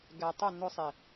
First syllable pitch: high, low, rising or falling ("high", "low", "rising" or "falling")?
low